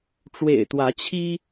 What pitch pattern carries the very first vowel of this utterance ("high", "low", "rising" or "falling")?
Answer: low